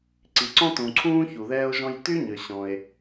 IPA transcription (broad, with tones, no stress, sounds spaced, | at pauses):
ǀ i˩ ǀ ɔ̃˥ t ũ˩ ǀʰ ũː˥ ç u˩ ð ɛː˥ o̯ ʒ ɔ̃˥ j t y˥ ɲ ø˩ ɕ ɔ̃˩ e̯